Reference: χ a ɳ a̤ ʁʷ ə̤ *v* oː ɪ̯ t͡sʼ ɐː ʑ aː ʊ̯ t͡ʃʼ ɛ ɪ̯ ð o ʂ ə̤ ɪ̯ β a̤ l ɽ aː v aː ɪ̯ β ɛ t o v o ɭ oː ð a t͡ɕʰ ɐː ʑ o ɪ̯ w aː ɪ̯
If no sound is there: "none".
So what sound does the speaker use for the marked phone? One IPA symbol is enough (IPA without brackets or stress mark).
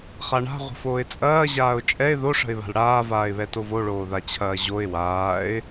f